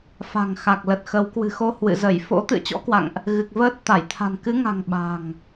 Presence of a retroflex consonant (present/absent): absent